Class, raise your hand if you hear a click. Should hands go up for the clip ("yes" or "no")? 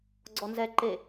yes